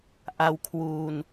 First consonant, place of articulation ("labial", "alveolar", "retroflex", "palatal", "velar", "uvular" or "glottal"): glottal